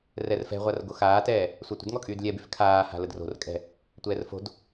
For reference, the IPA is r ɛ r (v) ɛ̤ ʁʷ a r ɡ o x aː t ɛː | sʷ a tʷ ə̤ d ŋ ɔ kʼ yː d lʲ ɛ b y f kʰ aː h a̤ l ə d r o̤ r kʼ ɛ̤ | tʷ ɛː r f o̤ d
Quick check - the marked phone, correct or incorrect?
incorrect